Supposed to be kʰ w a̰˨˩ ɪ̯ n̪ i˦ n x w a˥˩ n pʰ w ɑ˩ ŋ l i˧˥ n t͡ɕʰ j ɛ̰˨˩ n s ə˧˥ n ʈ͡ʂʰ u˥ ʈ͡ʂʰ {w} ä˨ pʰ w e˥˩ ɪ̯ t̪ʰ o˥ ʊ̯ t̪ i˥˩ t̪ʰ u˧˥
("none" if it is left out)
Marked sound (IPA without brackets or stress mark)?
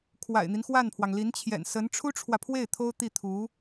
w